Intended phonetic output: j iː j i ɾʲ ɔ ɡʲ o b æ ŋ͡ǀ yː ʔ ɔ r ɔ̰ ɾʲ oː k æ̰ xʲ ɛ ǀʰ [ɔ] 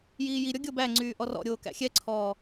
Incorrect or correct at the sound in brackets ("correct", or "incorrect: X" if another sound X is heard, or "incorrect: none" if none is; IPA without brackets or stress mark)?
incorrect: ɔː